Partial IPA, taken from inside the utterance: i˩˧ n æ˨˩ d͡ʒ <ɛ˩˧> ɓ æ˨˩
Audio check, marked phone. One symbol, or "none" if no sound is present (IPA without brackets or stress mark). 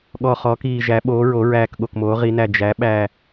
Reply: æ˩˧